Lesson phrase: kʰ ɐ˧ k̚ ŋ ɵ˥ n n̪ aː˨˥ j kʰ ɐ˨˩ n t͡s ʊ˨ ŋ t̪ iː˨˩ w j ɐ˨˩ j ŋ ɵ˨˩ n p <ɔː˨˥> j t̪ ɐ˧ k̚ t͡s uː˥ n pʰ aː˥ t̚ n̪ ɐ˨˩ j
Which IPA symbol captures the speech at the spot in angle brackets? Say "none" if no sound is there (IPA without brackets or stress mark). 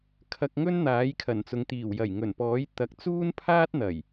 ɔː˨˥